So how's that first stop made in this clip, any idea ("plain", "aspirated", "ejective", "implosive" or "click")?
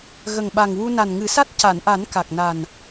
implosive